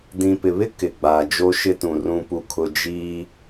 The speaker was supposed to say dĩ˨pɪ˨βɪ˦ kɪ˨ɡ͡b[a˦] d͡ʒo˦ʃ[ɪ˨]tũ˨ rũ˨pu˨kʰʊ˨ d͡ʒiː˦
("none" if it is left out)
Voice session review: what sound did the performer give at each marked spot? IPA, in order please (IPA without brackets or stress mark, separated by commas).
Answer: a˨, ɪ˦